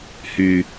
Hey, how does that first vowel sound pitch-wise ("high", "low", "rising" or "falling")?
low